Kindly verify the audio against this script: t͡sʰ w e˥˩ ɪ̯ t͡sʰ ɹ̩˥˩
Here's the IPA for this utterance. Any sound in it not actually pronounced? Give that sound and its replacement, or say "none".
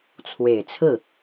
e˥˩ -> e˨˩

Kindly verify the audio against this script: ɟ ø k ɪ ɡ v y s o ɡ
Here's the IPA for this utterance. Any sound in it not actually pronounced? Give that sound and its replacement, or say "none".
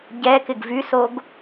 ø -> ɛ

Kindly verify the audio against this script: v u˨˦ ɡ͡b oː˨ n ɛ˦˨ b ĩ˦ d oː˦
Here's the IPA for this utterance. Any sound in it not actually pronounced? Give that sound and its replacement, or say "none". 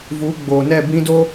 none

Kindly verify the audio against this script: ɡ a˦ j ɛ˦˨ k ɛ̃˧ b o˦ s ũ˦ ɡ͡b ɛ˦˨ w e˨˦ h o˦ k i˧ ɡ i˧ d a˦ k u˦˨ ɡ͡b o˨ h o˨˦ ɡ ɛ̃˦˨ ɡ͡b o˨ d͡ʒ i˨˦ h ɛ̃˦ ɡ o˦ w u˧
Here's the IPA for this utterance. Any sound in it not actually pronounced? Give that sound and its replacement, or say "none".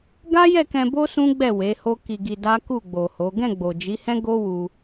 none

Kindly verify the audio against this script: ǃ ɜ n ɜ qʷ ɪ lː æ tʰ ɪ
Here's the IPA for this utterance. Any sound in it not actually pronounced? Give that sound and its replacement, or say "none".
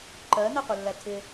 none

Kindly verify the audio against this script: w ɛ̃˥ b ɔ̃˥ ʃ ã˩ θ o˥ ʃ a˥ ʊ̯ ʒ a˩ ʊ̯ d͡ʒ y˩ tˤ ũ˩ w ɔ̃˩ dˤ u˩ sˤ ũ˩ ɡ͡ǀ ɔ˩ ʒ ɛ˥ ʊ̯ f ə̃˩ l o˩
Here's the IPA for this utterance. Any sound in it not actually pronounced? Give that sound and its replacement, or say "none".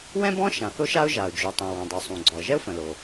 none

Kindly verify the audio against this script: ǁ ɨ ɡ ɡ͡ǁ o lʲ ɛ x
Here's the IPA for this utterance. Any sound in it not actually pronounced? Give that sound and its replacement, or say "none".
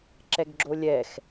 ɨ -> ɛ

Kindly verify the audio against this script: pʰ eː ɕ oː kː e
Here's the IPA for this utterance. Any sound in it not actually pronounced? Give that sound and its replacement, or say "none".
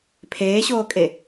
kː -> kʼ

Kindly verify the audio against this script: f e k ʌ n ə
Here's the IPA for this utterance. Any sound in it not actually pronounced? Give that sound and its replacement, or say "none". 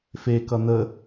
none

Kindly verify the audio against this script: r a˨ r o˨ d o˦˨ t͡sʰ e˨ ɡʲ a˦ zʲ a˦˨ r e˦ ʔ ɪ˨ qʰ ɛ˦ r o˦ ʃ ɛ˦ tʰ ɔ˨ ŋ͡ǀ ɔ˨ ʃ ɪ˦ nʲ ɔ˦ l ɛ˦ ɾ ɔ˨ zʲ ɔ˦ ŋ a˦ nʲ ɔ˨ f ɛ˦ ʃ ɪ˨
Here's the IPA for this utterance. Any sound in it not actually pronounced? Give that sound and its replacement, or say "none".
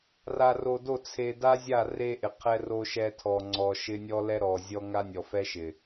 ɡʲ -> d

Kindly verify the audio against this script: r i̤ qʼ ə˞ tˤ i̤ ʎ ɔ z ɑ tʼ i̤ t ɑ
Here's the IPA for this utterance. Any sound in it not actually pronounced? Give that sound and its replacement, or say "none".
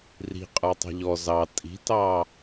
none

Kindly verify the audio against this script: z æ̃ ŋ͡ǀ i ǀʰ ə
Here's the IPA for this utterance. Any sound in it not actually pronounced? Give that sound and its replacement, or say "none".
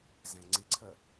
none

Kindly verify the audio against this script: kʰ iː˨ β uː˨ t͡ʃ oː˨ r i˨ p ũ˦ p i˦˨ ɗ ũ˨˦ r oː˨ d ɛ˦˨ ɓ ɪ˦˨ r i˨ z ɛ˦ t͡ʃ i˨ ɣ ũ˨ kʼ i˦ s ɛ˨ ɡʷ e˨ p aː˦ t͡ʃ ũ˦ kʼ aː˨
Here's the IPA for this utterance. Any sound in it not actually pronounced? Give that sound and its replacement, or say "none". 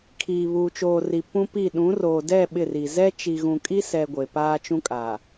none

